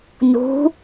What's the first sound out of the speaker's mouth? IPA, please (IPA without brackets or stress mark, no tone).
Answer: n